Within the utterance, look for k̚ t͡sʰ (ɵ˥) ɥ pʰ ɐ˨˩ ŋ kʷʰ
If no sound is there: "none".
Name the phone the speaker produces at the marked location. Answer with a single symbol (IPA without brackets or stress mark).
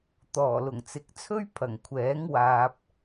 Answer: ɵ˥